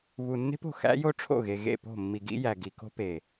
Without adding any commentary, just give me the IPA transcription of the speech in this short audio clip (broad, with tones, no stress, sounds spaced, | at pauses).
β u˨ nː e̤˦ p o̤˨ x æ̰˦ j o˦ ʈ͡ʂʰ o̰˦˨ ɣ e˨ ɣ ḛ˦˨ p o̤˦˨ mː i˨ ɡ ḭ˦ j æ˨ ɡ i˨ k o̤˦ p e˨